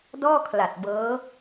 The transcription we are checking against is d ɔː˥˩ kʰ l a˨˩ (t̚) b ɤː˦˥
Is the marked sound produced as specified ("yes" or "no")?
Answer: yes